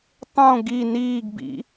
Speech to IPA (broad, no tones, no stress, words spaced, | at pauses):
tˤõ ɡi niːɡbḭ